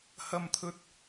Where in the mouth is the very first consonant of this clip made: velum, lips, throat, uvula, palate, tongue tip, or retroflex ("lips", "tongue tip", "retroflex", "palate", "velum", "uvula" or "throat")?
throat